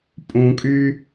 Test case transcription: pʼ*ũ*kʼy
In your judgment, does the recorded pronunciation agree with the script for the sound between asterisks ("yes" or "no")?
yes